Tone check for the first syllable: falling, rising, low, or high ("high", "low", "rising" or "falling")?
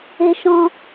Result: high